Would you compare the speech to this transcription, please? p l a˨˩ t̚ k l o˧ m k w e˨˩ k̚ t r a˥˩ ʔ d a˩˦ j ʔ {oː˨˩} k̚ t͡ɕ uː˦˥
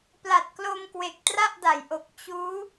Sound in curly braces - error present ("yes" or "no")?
yes